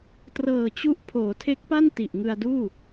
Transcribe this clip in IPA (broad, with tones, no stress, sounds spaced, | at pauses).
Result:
t r ɤː˨˩ t͡ɕ u˦˥ ʔ pʰ oː˩˦ tʰ e˦˥ k̚ p a˥˩ n t i˨˩ ʔ ŋ ɯ˧ a̯ d uː˥˩